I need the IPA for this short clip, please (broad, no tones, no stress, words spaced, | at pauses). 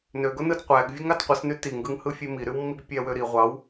nøɡo nɯdqʷæɡ vʲɯŋɑtqʷɯsny tiŋɡɯŋhɯ fʲemiɾywmːiɡ pʲæwøɾi ʁʷɑw